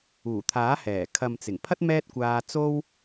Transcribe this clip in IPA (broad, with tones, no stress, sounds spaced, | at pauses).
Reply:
uː˨˩ t̪ʰ aː˨˥ h ɛː˨˩ kʰ ɐ˨ m t͡s ɪ˨˩ ŋ pʰ ɐ˥ t̚ m ɛː˥ t̚ kʷ aː˧ t͡s o˥ w